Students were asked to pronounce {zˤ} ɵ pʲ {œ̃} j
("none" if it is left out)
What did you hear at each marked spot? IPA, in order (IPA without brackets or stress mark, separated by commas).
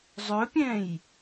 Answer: zˤ, ɛ̃